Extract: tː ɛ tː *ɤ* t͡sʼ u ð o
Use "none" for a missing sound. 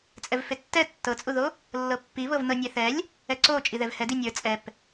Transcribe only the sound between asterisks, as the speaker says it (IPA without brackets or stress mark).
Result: ɤ